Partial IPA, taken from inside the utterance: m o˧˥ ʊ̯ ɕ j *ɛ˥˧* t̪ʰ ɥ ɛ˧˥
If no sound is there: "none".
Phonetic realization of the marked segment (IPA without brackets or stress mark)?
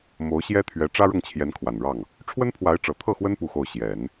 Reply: ɛ˥